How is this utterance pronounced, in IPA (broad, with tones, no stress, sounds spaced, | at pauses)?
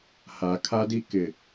h a˨ kʰ a˦ d i˦ k ɪ˨